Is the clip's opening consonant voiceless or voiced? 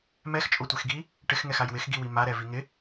voiced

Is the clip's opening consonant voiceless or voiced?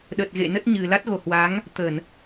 voiced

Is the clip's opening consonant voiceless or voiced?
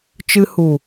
voiceless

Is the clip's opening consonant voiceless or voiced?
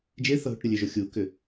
voiced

